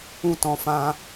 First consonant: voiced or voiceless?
voiceless